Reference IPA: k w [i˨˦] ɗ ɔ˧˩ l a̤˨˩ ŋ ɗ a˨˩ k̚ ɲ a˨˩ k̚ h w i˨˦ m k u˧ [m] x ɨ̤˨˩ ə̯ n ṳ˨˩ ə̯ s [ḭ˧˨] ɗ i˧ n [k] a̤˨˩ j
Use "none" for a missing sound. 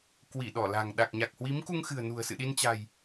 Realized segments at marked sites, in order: i˧˩, ŋ, ɨ̰˧˨, t͡ɕ

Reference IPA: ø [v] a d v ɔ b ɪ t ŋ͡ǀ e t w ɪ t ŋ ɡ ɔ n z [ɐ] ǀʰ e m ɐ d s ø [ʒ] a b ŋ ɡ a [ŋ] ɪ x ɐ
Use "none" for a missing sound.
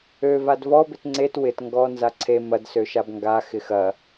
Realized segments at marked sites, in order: v, a, ʃ, x

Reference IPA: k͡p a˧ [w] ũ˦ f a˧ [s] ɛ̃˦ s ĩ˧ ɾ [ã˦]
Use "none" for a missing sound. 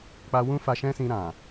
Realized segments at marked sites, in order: w, ʃ, ã˨

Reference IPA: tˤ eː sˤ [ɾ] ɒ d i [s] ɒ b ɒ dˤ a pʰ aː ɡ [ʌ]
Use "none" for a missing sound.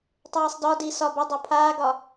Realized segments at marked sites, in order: d, s, ɒ

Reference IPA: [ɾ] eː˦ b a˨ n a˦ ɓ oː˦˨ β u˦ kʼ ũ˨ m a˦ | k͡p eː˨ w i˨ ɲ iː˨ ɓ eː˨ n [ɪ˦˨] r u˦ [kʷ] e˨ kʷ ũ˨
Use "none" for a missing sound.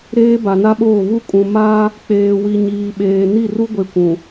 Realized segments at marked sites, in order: ɾ, i˦˨, ɡʷ

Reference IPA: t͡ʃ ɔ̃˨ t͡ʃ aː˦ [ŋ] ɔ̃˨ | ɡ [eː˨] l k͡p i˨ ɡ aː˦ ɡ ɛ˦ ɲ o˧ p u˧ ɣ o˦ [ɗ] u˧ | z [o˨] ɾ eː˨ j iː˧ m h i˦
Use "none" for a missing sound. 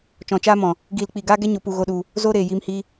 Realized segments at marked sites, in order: m, iː˨, ɗ, o˦

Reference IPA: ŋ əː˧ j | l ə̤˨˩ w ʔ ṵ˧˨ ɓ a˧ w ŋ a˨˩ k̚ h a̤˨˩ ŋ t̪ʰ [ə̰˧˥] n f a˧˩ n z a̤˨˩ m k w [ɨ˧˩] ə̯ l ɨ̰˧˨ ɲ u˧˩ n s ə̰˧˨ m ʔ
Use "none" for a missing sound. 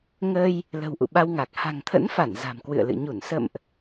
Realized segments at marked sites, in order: ə̰˧˥, ɨ̰˧˨

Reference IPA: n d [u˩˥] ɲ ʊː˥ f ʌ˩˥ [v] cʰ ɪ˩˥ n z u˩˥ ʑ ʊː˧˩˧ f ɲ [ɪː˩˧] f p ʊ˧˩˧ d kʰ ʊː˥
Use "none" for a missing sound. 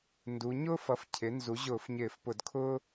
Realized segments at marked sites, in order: u˩˧, f, ɪː˧˩˧

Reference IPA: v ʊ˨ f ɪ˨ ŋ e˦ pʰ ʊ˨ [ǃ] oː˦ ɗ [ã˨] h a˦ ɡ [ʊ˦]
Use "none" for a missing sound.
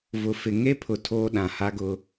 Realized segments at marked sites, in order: tʰ, ã˨, ʊ˦

